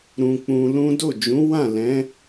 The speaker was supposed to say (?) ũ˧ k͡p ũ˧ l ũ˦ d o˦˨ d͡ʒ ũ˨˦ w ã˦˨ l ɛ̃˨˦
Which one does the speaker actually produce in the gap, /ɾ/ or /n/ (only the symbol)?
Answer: ɾ